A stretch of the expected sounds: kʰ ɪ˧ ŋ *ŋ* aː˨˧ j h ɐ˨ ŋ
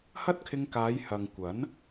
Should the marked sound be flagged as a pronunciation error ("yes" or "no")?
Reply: yes